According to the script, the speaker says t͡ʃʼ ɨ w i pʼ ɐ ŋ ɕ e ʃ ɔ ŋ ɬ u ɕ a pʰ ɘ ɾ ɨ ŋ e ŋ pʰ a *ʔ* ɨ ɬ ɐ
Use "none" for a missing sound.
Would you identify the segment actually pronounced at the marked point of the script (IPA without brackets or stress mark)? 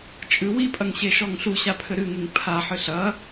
ħ